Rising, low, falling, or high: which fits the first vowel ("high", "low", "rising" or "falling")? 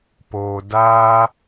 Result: low